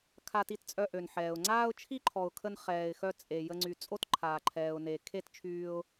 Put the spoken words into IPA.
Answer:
kʰa˧ti˧tt͡sʼœ˧ ʔø˨nħɛː˨ʊ̯ ŋ͡ǀaː˦ʊ̯t͡ʃʰi˦ǃʰɔ˨ʊ̯kʰə˧n χɛː˨ɪ̯xœ˧ t͡sʼe˨ jə˧ŋ͡ǀy˨ t͡sʼo˦tǃʰaː˨ ǃʰɛː˨ʊ̯ne˨kʰe˦t t͡ʃʰyː˧ʊ̯

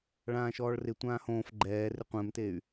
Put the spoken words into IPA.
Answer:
ɭãːʃɔːɭrɪ tʷãːhõːf ɡ͡ǃɛːrɪ qʷɛ̃mtey̯

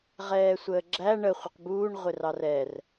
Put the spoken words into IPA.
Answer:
ʁɛːsʷəːɡ͡ǁæ ɳə χʷɪqbuːɳ ʁʷɪrɑrɛr

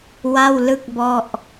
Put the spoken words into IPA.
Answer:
wa˥˩wlɯ˥˩k̚bɔ˥˩ʔ

